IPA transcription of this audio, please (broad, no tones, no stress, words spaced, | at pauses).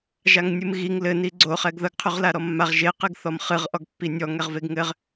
ʒaŋnʲɨmɣiŋ lɘ niɡ͡ǀo χɛɡðɐɡ qʰuʁlaɾɔmːaʁ ʒeqɨɡθɔm χɨʁʔɔɡ pːinʲɔ ŋɛʁveɡŋɘʁ